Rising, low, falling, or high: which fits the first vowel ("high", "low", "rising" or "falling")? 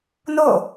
falling